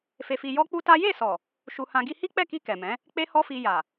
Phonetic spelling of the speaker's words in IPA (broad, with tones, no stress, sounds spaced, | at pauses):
f e˧ f i˧ j ɔ˦ k͡p u˦ t a˦ j e˦˨ s ɔ˨ | ʃ u˧ h ã˧ ɡ i˧ h i˦ k͡p ɛ˦˨ k i˧ k ɛ˨ m ɛ̃˨˦ | k͡p e˦ h ɔ˦ f i˧ j a˨